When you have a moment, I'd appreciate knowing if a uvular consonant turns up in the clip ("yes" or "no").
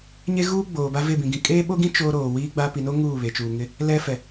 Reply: no